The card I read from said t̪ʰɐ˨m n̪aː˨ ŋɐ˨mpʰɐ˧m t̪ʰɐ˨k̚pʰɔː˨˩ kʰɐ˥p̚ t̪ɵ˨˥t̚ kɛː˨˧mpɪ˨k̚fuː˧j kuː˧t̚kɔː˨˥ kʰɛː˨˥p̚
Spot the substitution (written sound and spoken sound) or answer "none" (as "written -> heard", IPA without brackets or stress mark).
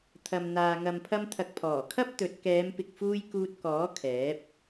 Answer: none